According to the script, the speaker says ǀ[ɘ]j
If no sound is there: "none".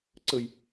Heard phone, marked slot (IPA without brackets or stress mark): ɘ